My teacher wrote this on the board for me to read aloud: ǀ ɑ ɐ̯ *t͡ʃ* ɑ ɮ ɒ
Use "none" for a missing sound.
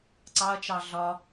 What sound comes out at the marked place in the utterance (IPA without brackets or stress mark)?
t͡ʃ